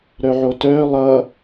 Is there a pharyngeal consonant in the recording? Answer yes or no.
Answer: yes